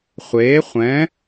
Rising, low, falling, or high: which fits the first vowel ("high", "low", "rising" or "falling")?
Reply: rising